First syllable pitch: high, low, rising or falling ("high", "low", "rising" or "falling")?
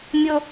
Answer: high